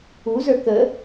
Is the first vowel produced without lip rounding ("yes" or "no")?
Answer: no